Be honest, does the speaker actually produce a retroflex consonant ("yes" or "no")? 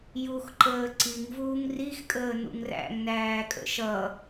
no